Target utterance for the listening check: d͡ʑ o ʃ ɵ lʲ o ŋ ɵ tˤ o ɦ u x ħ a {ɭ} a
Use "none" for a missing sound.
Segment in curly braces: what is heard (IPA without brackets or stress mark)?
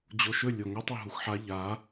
ʎ